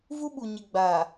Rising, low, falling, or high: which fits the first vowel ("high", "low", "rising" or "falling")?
high